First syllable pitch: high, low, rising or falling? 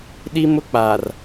high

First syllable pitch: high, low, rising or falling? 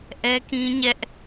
high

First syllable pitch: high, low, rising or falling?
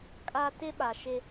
high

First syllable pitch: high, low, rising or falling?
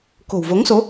low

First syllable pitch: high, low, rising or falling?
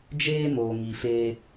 high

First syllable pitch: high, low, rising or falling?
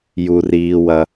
high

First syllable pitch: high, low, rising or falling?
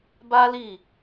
high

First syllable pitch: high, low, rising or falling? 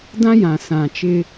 high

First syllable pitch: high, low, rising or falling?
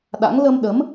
rising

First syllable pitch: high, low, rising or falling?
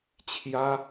high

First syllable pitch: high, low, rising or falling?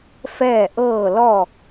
falling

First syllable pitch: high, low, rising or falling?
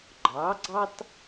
rising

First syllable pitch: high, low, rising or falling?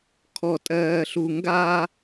low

